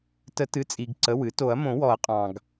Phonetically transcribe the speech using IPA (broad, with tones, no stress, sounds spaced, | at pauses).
t ə˨˩˦ t ɨ˩˧˩ t͡sʼ i˩ ɡ ǀ ə˩˧˩ w ɨ˨˩˦ t o˨˩˦ ɐ̯ m õ˨˩˦ w ɔ˨˩˦ ɐ̯ qʼ ɑ̃˩ ɡ